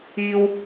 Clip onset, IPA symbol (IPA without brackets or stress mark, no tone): iː